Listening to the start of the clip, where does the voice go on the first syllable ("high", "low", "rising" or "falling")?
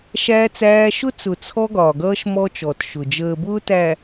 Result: high